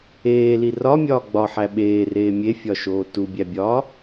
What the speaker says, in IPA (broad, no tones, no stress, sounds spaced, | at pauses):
eː l i r ɒ mʲ ɒː ɡ͡b ɒ ħ æ ɓ eː r eː mʲ e fʲ ɒ ʃ oː t u bʲ æ bʲ ɒː